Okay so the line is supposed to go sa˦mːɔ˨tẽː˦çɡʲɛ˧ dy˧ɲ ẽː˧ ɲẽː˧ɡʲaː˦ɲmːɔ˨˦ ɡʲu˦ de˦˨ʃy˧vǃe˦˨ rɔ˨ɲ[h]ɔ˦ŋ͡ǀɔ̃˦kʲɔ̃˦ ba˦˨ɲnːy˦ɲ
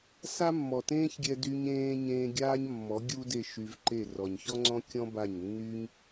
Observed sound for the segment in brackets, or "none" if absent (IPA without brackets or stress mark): ç